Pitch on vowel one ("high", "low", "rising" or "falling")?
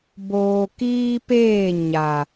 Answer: low